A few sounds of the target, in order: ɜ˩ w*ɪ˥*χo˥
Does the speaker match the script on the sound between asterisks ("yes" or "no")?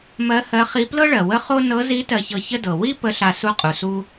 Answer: no